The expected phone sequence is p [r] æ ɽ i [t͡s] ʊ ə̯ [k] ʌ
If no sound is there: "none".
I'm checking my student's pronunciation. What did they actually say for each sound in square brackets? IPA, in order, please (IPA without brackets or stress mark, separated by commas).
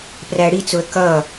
r, t͡s, k